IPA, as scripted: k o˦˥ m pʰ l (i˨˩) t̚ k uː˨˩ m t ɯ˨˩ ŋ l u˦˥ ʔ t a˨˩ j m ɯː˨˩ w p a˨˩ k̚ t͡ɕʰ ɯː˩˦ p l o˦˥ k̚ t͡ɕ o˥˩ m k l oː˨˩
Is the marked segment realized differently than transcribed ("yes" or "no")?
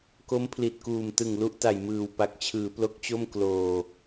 no